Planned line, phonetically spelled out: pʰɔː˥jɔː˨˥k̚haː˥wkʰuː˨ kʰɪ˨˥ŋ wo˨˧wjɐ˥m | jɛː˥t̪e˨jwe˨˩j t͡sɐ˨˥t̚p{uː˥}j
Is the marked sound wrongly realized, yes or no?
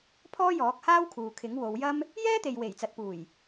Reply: yes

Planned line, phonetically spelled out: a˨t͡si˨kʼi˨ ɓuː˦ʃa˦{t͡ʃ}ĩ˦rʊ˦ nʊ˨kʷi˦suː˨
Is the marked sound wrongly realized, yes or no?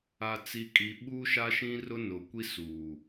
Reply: yes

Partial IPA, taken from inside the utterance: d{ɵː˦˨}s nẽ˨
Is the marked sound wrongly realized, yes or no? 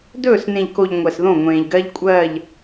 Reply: no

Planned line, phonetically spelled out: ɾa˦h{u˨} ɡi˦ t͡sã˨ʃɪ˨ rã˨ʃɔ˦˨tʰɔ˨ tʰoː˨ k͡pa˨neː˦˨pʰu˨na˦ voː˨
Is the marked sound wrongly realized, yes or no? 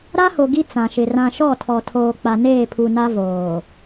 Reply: yes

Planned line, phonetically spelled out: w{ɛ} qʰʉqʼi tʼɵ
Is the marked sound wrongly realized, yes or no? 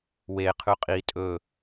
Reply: yes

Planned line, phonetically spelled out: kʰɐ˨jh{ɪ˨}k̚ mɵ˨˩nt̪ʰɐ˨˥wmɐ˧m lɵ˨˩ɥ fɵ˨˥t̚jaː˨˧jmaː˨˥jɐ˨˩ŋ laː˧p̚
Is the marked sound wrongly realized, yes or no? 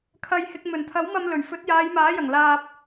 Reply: no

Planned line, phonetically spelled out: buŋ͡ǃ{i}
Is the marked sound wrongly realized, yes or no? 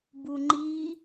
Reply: no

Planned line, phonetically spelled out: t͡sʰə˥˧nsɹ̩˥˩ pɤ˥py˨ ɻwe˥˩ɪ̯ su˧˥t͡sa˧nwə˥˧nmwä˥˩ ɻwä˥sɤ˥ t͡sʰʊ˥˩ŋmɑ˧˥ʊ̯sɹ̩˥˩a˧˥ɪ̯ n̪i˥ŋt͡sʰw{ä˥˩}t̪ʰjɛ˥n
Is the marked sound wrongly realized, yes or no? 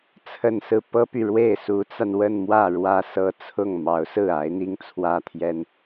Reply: yes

